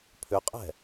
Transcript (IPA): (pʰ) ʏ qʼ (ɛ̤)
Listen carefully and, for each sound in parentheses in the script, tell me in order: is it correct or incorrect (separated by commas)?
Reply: correct, correct